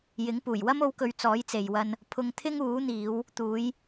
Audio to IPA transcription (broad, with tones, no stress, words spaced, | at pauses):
jɪ˨˥ŋpuː˨˩j wɐ˥m o˧wkɵ˨˧ɥ t͡sɔː˨˥jt͡se˨jwɐ˧n | pʰʊ˧ŋt̪ʰɪ˥ŋ uː˨˥n̪iː˨˧w | t̪uː˨˧j